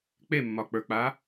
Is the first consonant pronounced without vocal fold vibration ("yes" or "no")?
yes